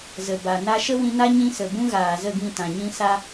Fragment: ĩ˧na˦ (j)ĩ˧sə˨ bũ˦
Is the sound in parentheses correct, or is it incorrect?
incorrect